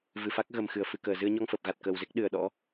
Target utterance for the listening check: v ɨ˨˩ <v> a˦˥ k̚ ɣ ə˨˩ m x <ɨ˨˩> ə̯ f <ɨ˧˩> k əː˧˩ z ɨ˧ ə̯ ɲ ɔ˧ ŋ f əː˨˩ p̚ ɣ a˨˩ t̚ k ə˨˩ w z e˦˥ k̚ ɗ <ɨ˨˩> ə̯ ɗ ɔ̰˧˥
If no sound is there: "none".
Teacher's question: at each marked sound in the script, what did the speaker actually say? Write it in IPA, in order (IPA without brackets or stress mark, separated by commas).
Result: f, ɨ˧˩, ɨ˧˩, ɨ˨˩